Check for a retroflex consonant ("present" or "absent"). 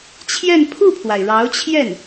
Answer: present